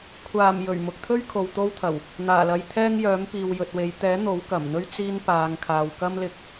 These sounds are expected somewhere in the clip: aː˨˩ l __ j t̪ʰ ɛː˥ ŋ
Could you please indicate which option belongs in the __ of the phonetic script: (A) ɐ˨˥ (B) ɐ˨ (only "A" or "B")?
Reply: B